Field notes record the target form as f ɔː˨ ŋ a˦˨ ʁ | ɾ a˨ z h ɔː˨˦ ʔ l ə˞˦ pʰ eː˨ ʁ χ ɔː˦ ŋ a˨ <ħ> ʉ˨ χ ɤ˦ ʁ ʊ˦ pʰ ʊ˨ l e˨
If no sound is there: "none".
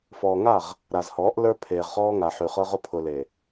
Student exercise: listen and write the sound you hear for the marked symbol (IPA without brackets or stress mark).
ħ